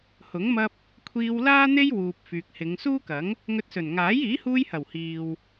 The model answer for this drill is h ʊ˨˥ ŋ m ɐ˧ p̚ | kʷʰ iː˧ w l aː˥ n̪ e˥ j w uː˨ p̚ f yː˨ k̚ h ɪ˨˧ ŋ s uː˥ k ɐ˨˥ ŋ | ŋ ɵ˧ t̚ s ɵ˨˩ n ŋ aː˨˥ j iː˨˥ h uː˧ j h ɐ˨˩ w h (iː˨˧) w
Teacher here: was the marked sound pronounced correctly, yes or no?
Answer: no